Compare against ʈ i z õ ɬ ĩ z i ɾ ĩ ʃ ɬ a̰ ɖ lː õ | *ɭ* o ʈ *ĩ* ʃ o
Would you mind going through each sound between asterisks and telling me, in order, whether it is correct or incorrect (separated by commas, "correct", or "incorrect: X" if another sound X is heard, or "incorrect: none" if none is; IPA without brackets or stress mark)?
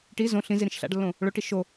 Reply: correct, incorrect: i